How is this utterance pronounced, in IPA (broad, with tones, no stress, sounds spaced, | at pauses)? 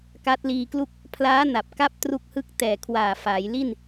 k a˦˥ t̚ l iː˧ k l u˥˩ k̚ | pʰ l aː˦˥ n a˨˩ p̚ k a˦˥ p̚ t r u˥˩ k̚ h ɯ˥˩ k̚ t ɛː˨˩ kʰ w aː˨˩ f aː˩˦ j l i˥˩ n